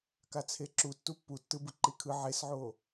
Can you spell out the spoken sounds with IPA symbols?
k a t͡sʰ e ǁ u tː u pː u tː ɯ b ɯ ǃ i kʰ ɯ ʕ e s ʕ o

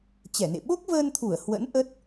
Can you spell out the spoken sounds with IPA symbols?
t͡ɕ ɛ˧˩ n ḛ˧˨ ɓ o˦˥ k̚ v əː˧ n t̪ʰ u˧˩ ə̯ h w ə̰˧˥ n ʔ ə˦˥ t̚

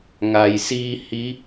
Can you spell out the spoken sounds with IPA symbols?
ŋ a˩ j s iː˧ h i˧˥

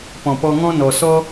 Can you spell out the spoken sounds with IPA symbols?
p ɔ̃˨ p ɔ˧ ŋ ɔ̃˦ n ɔ˨ s ɔ˦

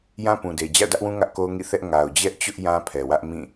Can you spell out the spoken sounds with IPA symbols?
j ã˦ p ũ˨ d e˨ d͡ʑ a̰˦˨ ʊ̯ d ä˦ ʔ w ũ˦ ŋ ä˦ ʔ k o˦ ʊ̯ ŋ ḭ˦˨ θ ɛ˦ ʔ ŋ a˨ ʊ̯ d͡ʑ ɛ˦ ʔ t͡ɕ ʊ˦ ʔ j ã˦ pʰ ɛ˨ w ä˦ ʔ m ĩ˦˨

